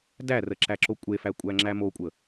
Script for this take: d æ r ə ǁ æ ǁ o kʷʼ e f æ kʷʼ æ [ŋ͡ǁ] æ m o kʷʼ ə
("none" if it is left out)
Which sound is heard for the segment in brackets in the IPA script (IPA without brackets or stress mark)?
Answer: ŋ͡ǁ